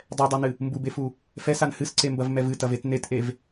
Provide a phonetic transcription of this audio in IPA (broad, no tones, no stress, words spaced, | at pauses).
dˤɛdˤanɨ | mbubefu | fɛsan hɨsǀembɐvmɛv ɨtɐvet netʔev